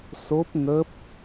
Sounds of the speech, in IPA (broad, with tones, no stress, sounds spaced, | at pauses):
s o˦˥ p̚ ŋ ə˦˥ p̚